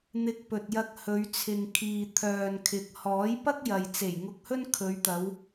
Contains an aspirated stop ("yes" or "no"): yes